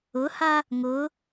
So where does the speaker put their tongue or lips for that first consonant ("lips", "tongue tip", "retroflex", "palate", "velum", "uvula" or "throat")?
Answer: throat